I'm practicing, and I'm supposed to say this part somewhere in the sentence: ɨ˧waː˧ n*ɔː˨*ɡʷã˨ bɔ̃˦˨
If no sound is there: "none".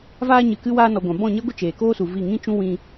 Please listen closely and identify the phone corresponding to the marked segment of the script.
ɔ˨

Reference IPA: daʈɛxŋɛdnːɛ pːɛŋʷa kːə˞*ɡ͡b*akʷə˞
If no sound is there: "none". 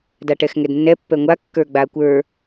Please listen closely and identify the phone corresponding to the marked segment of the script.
ɡ͡b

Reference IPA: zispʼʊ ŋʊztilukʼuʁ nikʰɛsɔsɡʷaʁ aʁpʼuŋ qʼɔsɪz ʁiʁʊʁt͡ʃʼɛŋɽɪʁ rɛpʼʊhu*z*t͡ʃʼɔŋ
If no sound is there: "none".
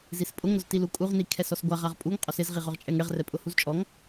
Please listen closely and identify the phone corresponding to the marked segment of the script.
z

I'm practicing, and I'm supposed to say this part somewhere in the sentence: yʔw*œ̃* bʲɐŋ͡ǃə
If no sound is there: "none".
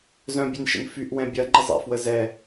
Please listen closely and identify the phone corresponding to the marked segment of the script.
ɛ̃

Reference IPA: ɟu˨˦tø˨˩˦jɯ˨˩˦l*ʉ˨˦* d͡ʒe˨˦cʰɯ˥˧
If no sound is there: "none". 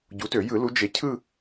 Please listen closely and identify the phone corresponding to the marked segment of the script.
u˨˦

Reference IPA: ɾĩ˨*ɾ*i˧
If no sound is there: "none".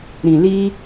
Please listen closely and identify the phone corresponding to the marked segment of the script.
l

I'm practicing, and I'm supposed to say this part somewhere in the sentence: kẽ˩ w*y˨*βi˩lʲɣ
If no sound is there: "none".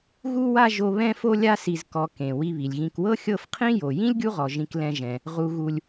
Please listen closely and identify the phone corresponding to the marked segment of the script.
i˨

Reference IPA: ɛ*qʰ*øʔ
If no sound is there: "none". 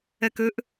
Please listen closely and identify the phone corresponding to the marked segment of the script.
k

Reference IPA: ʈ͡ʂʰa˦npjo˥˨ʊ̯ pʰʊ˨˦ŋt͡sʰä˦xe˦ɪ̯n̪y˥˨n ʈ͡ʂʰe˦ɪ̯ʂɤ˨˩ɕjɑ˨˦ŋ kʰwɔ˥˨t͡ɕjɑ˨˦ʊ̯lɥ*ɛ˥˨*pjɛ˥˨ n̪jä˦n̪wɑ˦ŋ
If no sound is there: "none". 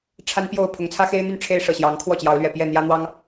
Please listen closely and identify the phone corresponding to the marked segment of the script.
ɛ˨˩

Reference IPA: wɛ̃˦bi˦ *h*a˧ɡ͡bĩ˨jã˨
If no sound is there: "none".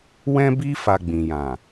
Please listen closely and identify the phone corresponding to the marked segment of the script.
f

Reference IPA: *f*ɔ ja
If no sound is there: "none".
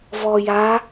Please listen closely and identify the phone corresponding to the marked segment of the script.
v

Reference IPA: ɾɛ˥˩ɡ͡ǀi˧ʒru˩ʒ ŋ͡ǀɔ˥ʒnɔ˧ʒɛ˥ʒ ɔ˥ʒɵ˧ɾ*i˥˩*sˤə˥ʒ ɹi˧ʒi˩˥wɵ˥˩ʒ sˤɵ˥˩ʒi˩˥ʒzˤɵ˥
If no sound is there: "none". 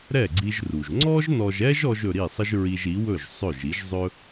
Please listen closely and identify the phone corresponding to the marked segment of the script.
i˥˩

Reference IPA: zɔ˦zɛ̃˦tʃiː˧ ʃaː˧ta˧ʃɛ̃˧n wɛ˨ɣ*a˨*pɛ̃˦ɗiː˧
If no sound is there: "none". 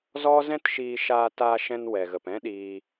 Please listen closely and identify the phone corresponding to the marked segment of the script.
ə˨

